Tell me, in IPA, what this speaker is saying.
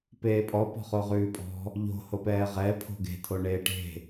peːpʼɔ pɔ̤χoʁʉːpʼɔ̤ | ʎo̤ hopɛːʁɛ pʰo̤ɡe̤ tʰoɳeːʈe̤

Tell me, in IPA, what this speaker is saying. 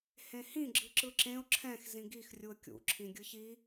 hẽhĩ ɡ͡ǁɯǁɯǁẽʊ̯ ǁʰɛ̃x zĩɡix rʲuə̯kʲṵ ǁʰĩɡʲɯçi

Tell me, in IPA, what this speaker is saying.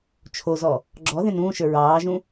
t͡ʃʰozɔ | ɡ͡ǁɔ ðẽnũːʃə˞ ɹɑːʒũ

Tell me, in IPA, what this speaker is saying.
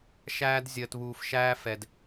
ʃæː˦d zʲəː˨tβuː˨fʃæː˦fɛ˨d

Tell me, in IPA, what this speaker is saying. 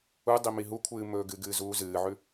u dˤimiɦu kʷʰɨːmɵːɡɨ ɡɨːzuːzɨːʕʉ

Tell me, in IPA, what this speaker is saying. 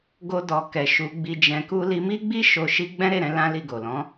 ɡo˧dɔ˨ kɛ˨ʃu˨˦ɡ͡bi˧d͡ʒɛ̃˧ ku˧li˧mi˦ɡ͡bi˦ ʃo˧ ʃi˦ ɡ͡bɛ̃˦ɾe˦˨ɾɛ̃˨˦ lã˦li˦˨ ɡo˨lɔ̃˨˦

